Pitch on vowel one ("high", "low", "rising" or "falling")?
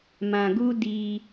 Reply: low